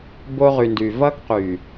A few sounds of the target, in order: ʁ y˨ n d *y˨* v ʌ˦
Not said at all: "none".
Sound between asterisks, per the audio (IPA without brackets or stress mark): y˨